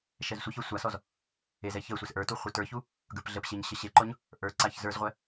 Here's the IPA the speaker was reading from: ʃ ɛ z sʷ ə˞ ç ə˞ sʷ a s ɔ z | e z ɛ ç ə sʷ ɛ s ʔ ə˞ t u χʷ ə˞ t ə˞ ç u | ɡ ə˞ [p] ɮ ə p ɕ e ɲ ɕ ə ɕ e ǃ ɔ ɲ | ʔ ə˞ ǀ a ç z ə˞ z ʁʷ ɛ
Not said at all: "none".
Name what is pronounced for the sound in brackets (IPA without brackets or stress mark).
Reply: p